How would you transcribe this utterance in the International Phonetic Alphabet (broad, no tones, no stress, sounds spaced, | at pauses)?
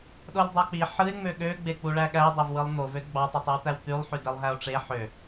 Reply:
ɗ o lʲ dˤ ɑ k͡p i ħ ɯ e̯ ŋ͡m ø ɠ ø ɡ͡b e k͡p u ɭ æ ɠ æ dˤ e v w ɯ lˠ n̪ o v ø d ɡ͡b ɑ tˤ i tˤ y w t̪ æ w t̪ y lˠ ħ y d e lˠ ɦ æ o̯ ʈ͡ʂ e ħ ø